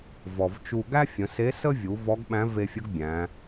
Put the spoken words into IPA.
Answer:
vɔ˩vt͡ʃu˧ ɡæ˥fʲə̃˩˧ se˧˥sə˥vʲu˩˧ vɔ˧˥ɡɓæ̃˧˥ve˧fʲə˧˥ɡ bʲæ̃˩˧

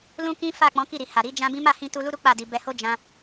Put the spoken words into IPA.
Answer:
lũ˦kĩ˦ fa˦˨ k͡pɔ̃˨˦ki˦˨ɾi˨ ha˨ɾi˨˦ d͡ʒã˦bĩ˦ ma˦˨hĩ˧tu˧ lu˦ɾu˦ k͡pa˦˨di˧ bɛ˧ho˦ d͡ʒã˦

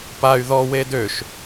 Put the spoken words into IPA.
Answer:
pay̯ ðɔwe døʃ

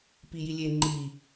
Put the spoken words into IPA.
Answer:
pijilʲe ŋ͡ǃi

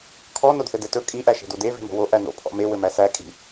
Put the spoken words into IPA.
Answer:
kʰɔ nodθɘdɛtɵ kʼi ʔæʃe̤dode ve̤mo̤wo ʔæno̰ pʰɔ̰me wɘmæsæ kʼi̤

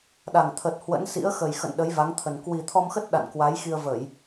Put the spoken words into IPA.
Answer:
ɗa˨˩ŋt̪ʰə˨˩t̚ hwə̰˧˥nsḭ˧˥ə̯ xə˨˩jxə̰˧˨n ɗə˨˦jva˨˦ŋt̪ʰə˨˩n kwi˨˩t̪ʰɔ˧mxə˦˥t̚ ɗa̰˧˨nkwa˨˦j xi˧ə̯və˧˩˨j

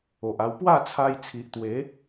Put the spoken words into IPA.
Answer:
o˨ʔa˧w pwa˥˧t͡sʰa˧j t͡sʰi˨ʔt̪we˨˦

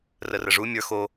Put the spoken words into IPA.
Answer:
rərəʐu mʲə˞ xo

